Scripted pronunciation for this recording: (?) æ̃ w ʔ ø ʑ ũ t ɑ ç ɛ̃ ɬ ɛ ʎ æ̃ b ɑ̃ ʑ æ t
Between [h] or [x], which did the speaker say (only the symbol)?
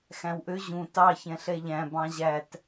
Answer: x